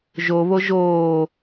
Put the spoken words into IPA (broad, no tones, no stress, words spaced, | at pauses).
ʒoβo ʒoː